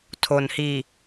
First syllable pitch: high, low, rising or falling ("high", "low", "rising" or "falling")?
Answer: low